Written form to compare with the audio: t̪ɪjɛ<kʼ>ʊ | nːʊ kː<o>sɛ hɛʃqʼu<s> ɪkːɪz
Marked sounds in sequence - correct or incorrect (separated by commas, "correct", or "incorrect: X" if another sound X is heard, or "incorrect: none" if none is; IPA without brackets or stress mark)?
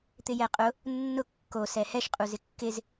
incorrect: qʼ, correct, incorrect: z